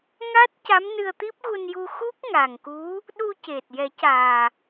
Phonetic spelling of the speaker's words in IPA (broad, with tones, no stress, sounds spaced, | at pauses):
ŋ aː˦˥ t̚ c a˧˥ m n ɨ˧ ə̯ t̪ i˦˥ p̚ ɣ u˧ n j u˧ x u˦˥ k̚ ŋ a˨˩ ŋ k u˧˥ | ɗ u˧ c e˨˩ t̚ j ɛ˨˩˦ c aː˨˩